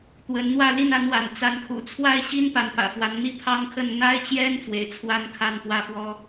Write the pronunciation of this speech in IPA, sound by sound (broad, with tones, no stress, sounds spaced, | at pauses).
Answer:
t̪ w ə˧˥ n n̪ w ä˥˧ l i˥˩ n a˧˥ n w a̰˨˩ n t͡s a˧˥ n kʰ ṵ˨˩ t͡sʰ w a˥ ɪ̯ ɕ i˥ n p a˧˥ n p ä̰˨˩ f w a˧˥ n n̪ i˥˩ pʰ ɑ˥ ŋ kʰ ə˥˩ n n̪ a˥ ɪ̯ t͡ɕ j ɛ˥ n f w ḛ˨˩ ɪ̯ t͡sʰ w a˥ n kʰ a˥˧ n t̪ w ä˥˩ f w ɔ˥